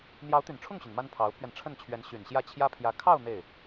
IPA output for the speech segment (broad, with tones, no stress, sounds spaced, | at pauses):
n̪ j ɑ˧˥ ʊ̯ t̪ y˨˩ n ʈ͡ʂʰ ʊ˥˩ ŋ ɕ y˩ n m a˥ n pʰ ɑ˧˥ ʊ̯ pʰ ɥ ɛ˧ n ʈ͡ʂʰ ə˥˩ n t͡ɕʰ ɥ ɛ˧˥ n ɕ y˨˩ n ɕ j ä˥˩ t͡ɕʰ j ä˥ pʰ j ä˧˥ kʰ ɑ˥˧ ʊ̯ n̪ e˥˩ ɪ̯